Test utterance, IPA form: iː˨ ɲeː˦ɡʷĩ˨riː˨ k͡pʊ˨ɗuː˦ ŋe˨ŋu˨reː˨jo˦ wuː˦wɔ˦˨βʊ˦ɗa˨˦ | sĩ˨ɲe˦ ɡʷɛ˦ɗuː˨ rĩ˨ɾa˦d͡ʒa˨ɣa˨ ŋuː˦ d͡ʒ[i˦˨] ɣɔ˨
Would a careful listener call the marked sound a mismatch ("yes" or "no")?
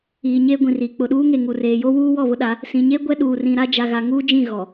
yes